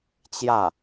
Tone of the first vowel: falling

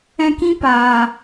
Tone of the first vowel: high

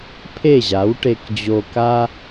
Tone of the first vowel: falling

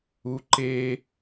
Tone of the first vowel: low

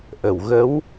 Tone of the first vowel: low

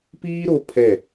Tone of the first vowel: high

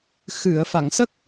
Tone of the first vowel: low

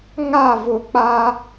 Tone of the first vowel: falling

